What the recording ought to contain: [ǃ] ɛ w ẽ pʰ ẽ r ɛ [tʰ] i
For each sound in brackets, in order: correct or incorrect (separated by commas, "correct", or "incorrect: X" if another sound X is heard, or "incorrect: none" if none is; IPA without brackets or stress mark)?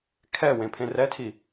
incorrect: kʰ, correct